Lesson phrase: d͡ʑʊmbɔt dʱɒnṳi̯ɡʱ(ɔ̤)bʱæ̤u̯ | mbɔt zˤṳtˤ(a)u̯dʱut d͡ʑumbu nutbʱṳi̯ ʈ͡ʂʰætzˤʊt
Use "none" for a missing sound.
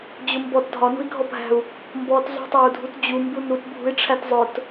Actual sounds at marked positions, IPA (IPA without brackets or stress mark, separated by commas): ɔ, æ